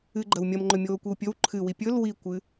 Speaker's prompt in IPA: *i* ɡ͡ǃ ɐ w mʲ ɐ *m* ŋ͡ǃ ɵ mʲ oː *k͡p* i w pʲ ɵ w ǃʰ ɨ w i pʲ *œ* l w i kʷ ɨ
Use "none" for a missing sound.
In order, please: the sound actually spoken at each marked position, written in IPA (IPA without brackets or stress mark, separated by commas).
ɨ, m, kʷ, ɵ